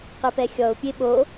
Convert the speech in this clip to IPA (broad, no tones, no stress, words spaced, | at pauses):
qɨpɛxʲɔʊ̯ pʲeɓo